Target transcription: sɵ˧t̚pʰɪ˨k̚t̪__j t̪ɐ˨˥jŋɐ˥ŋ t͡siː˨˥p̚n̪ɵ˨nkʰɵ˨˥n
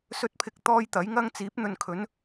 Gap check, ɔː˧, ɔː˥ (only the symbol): ɔː˧